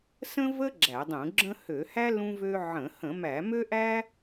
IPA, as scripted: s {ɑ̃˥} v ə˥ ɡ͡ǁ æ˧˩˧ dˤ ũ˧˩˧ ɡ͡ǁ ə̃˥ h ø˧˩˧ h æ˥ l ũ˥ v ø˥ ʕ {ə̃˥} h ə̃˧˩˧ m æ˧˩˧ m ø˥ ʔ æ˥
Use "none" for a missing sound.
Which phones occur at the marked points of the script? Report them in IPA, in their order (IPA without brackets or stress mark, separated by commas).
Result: ə̃˥, ə̃˧˩˧